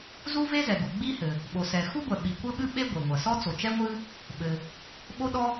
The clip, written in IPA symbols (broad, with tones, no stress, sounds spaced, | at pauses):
z u˥ v e˥ z ɛ˩ ɡ u˩ ɡ͡b i˥ h ɘ˩ | ɓ o˩ s ɛ˩ x u˥ ɡʷ ɛ˩ ɓ i˩ kʷ ɘ˥ ɓ ɨ˥ ɓ e˥ ɡʷ e˩ ŋʷ ɐ˩ s ɔ˥ t͡s o˩ t͡ʃ ɛ˥ ŋʷ ɨ˥ | ɓ ɘ˩ | ɓ o˥ ɗ ɔ˥